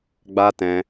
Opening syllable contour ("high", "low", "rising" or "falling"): high